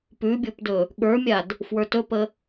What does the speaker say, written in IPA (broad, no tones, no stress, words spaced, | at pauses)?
pʉbʲopdɵ | ɠə˞mʲad | fwə˞tɵpə